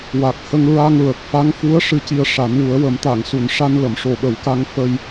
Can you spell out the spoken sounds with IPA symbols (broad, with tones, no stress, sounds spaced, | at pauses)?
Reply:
w a˨˩ k̚ h ə˧ ŋ ɹ a˧ ŋ ɹ ə˨˩ k̚ f a˧˥ ŋ f u˧˥ ə̯ ʂ ɨ˧ c i˧ ə̯ ʂ a˨˩˦ n w u˨˩˦ ə̯ w ə˨˩˦ m t̪ a˨˩˨ ŋ s u˨˩˨ n ʂ a˧ n l ə˨˩˨ m ʂ o˨˩ ɓ ə˨˩˦ w k a˧ ŋ f ə˧ j